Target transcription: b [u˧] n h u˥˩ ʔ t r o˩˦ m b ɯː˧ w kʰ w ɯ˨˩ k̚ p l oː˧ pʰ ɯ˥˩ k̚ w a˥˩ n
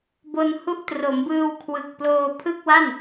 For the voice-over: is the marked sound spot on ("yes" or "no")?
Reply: no